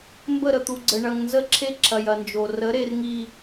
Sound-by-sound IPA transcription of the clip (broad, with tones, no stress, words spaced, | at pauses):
mbə˦˨ɾə˨t̪u˨ɡ͡ǀə˨ ɳɐ˨ŋnzə˦ǁʰe˦ ǁʰɐ˨jɐ˨nd͡ʒo˨ rə˨˦ɾe˨rŋi˨